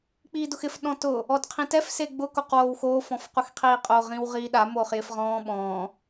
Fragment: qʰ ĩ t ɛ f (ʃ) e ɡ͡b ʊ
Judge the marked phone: incorrect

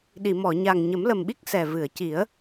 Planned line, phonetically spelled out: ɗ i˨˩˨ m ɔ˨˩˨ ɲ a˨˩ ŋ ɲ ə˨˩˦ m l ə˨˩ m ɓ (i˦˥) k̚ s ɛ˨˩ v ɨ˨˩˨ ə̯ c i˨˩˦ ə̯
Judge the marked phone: correct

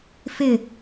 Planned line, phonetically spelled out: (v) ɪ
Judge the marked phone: incorrect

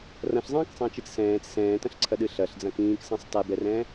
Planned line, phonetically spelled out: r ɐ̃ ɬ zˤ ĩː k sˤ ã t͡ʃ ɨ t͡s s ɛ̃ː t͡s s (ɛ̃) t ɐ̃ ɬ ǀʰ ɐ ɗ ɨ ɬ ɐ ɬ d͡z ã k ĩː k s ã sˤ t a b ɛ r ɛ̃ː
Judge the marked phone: incorrect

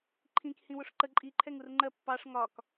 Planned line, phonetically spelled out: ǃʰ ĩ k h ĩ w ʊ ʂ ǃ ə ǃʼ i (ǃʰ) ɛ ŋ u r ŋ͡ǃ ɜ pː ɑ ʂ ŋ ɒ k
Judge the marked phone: correct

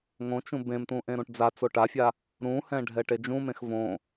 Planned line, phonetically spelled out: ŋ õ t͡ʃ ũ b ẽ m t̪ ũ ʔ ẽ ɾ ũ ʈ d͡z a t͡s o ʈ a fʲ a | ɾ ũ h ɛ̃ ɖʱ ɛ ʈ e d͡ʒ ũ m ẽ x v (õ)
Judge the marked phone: correct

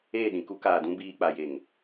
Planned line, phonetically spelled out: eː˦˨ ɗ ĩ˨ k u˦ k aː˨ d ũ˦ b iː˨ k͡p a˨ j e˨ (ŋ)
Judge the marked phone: correct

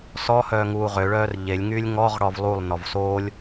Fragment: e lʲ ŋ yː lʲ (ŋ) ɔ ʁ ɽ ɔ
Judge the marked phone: correct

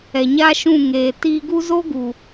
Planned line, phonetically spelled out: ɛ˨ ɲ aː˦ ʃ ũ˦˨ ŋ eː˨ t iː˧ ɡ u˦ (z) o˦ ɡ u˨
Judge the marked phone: correct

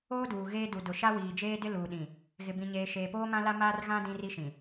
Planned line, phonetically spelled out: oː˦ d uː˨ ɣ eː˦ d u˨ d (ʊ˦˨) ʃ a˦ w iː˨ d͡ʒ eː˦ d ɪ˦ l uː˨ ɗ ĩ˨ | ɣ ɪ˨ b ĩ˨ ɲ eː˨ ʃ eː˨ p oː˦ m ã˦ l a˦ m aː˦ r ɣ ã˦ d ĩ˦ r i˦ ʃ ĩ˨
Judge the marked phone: incorrect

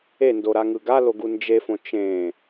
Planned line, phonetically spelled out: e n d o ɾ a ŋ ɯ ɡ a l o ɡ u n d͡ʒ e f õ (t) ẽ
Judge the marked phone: incorrect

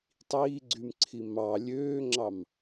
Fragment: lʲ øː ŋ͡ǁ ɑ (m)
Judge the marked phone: correct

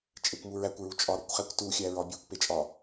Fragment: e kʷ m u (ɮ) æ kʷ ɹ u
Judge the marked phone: incorrect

